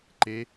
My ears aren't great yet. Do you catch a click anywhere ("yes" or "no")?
yes